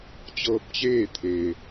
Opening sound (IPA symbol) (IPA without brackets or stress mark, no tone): t͡ɕ